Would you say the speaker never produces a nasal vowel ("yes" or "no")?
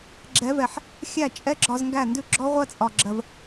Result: yes